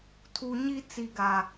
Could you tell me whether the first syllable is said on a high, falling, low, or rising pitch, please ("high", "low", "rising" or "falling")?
high